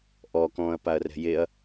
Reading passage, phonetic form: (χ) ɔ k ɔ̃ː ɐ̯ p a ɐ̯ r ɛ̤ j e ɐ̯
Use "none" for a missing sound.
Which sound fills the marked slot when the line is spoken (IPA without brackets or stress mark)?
ʔ